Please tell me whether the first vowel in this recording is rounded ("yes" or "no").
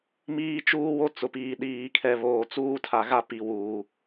no